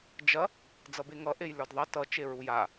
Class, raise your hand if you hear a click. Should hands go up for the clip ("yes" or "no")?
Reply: no